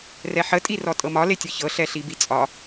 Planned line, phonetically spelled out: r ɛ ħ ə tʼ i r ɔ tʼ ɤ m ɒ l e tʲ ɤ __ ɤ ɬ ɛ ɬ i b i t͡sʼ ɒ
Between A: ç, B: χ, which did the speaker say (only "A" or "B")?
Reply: A